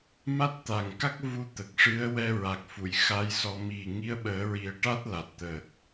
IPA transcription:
ma˦˥t̚t̪a˨˩ŋka˦˥k̚ vu˧ t̪ə˨˩k̚ʂɨ˧˥ə̯ wɛ˧ ɹa˨˩k̚ fu˨˩˨j xa˧˥jsɔ˧ mi˨˩ ŋi˧˥ə̯ɓəː˨˩˦ɹi˨˩˦ə̯ʈa˦˥t̚ la˨˩t̚ t̪əː˨˩t̚

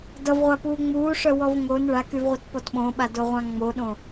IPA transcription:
dʌvʁʷapuː ŋ͡muːʂœwɔv ŋon ɭakyvʁʷʌtpɔt ɓõɓadoʁʷã ŋ͡moɗõ

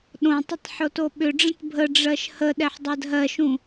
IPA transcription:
ɗõtˤətˤ ħotoɓʏɖ͡ʐə̃t bʱəɖ͡ʐɜʃ hə ɗɛħdˤɜdɦɜʃũ

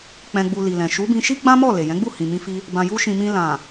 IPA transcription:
k͡pɛ̃˨ɡ͡bu˨ li˨lɛ̃˨ ʃu˨˦bĩ˧ʃi˦ ɡ͡bã˦mɔ˦˨ le˨jɛ̃˨˦ɡ͡bu˦˨hĩ˨ mĩ˧fi˧ | bã˨ju˧ʃĩ˨ mĩ˧ lã˨

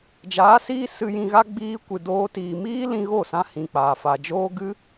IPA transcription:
d͡ʒaː˨˦siː˦ sɨ˧ jĩ˧ɣa˦ ɡ͡biː˦kʷɨ˧doː˦tiː˧ miː˦ lĩ˧ɣo˦˨sã˧ hĩ˨k͡paː˨ fa˨d͡ʒoː˦ ɡɨ˦

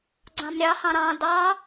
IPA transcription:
ɡ͡ǀɑ̃mɾʲɑhɑ̃ ɾɑ̃ dɑ

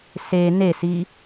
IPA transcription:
se nesi

